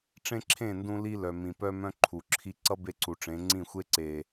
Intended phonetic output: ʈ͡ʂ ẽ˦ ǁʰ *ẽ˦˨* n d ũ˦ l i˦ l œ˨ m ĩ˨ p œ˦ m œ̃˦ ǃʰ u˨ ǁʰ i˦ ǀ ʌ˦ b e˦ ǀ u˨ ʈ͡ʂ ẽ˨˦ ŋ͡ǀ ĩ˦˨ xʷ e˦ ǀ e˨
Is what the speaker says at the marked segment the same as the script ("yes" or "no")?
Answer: yes